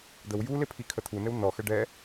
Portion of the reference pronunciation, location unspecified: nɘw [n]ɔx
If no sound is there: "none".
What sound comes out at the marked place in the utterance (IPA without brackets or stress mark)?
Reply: n